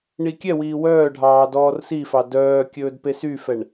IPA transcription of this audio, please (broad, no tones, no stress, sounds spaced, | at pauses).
ɳ i kʲ ɛ w iː w œː ɖʱ ɑː d ɔː r s i f ɑ d œː kʲ ɵː d p e s y f ɛ ɳ